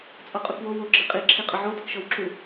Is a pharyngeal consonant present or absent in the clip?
present